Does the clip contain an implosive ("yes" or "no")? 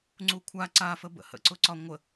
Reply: no